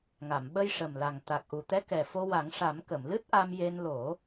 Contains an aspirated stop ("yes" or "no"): no